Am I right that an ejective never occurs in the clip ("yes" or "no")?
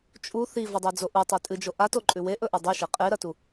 no